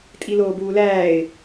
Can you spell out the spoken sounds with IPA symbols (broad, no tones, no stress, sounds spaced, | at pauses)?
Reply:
tʼ i l oː b uː l æː ɪ̯